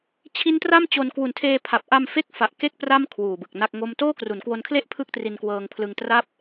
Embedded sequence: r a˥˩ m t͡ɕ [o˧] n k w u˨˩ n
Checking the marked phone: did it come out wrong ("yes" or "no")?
no